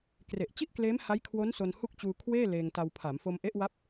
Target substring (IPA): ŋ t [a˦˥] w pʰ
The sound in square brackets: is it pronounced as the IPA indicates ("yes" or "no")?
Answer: no